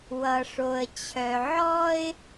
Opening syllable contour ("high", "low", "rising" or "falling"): low